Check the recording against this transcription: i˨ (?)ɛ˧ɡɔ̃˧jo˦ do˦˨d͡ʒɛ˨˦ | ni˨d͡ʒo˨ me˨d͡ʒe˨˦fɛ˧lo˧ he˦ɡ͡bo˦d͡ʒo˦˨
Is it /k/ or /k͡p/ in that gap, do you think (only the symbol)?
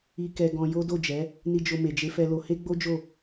k